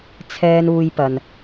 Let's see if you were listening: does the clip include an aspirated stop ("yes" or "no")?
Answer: yes